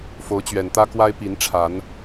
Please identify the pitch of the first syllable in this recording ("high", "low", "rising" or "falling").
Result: rising